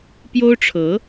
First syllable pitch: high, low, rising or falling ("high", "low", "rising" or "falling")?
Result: high